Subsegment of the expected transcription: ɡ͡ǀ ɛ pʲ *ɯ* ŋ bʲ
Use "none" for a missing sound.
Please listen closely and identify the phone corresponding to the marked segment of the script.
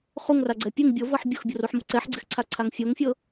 ɯ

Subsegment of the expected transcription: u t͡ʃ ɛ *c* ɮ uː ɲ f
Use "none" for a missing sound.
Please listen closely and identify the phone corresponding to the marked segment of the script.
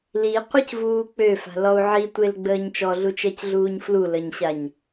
c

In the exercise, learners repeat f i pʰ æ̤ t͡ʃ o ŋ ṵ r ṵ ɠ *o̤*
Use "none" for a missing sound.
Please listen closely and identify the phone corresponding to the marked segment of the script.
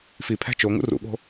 o̤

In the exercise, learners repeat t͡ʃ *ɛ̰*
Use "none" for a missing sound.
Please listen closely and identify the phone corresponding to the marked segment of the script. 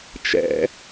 ɛ̰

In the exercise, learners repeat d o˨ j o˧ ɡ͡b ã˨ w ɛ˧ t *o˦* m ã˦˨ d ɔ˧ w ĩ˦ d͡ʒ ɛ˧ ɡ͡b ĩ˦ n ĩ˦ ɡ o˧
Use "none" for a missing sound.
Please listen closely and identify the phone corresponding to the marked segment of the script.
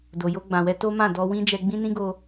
o˦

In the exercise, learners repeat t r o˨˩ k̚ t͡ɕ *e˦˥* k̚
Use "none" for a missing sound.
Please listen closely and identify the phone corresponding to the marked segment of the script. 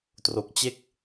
e˦˥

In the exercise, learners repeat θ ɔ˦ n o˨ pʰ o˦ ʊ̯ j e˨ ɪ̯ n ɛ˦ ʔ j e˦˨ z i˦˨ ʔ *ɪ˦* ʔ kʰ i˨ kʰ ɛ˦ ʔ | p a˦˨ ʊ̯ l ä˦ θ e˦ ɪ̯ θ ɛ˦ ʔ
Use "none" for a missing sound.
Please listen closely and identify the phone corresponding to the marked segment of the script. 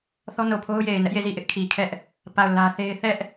ɪ˦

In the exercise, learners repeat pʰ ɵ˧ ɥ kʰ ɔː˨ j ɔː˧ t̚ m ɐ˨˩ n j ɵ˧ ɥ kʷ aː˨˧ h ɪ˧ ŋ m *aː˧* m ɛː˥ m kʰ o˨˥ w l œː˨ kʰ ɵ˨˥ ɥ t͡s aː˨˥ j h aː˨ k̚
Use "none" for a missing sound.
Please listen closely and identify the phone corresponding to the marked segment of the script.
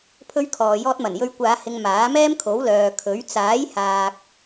aː˨˥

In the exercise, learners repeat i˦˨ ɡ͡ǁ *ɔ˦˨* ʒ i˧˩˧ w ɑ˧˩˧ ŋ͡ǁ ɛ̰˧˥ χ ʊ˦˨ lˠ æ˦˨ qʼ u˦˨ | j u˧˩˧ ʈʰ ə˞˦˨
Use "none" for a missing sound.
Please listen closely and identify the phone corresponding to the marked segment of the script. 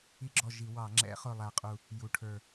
ɔ˦˨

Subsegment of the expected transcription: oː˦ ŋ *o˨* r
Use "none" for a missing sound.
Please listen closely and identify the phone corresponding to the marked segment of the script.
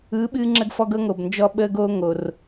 o˨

